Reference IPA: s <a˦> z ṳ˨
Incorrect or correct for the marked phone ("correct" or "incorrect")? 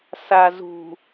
incorrect